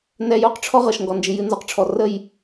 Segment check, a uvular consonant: present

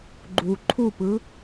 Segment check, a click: present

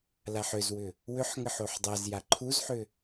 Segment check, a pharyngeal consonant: present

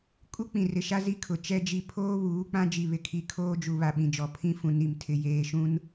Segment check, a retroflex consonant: absent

